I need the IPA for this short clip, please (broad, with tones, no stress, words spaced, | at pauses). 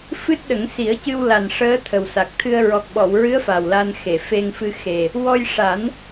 fɨ˦˥t̚ɗə˨˩˦ŋsi˨˩˦ə̯cɨ˧w la˨˩nʂəː˧˥ t̪ʰə˨˩wsa˨˩k̚t̪ʰɨ˧ə̯ ɹɔ˨˩k̚ɓɔ˨˩˨wɹɨ˧˥ə̯ fa˨˩wla˧nxe˨˩˨ fe˧ŋfɨ˧ xe˨˩ | wɔ˧jʂa˨˩˦n